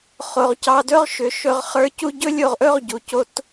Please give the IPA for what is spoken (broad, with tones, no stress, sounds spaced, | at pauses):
χ o˩ ʁ c ɑ˧ d ɵ˥ ʁ ʃ ʏ˩˧ ʃ ɵ˧ ʁ χ ə˞˧˥ c u˥ ɟ ɵ˥ lʲ o˧ ʁ ʔ ɵ˥ ʁ ɟ u˩ c o˧ t